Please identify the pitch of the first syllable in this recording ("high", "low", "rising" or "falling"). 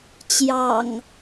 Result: low